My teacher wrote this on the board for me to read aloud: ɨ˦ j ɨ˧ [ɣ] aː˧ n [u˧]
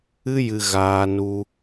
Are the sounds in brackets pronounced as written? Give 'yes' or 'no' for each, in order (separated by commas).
yes, yes